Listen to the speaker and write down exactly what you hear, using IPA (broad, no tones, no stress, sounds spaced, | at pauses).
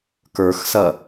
k ə˞ x s ɐ